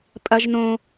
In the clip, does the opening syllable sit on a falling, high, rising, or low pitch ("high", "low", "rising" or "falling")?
high